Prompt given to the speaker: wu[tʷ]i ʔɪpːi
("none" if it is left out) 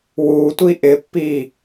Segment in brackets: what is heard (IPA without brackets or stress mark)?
tʷ